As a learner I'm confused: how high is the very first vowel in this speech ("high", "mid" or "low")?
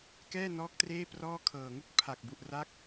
mid